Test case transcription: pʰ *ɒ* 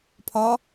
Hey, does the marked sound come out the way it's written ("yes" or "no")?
yes